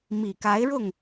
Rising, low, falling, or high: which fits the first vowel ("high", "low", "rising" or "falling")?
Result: low